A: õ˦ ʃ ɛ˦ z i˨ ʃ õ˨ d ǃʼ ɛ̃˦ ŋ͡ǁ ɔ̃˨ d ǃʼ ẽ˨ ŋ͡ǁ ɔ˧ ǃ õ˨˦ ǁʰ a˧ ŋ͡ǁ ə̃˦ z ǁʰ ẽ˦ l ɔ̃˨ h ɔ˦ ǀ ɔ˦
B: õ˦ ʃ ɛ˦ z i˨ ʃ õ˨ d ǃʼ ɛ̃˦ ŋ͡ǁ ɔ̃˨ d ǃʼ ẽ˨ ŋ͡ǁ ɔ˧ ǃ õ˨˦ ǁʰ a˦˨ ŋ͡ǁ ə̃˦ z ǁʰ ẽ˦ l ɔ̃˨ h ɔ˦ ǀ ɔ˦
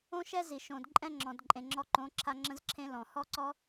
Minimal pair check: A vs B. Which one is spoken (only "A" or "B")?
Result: A